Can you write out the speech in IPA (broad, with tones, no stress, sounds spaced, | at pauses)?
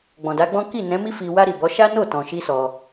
ɡ͡b ɔ̃˨ d a˨˦ ɡ͡b ɔ̃˦ k i˦˨ n ɛ̃˨˦ m i˦ f i˧ w a˦ ɾ i˦˨ b ɔ˨˦ ʃ a˦ n o˦˨ t ɔ̃˨ ʃ i˧ s ɔ˧